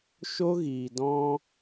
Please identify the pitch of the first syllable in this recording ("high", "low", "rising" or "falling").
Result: high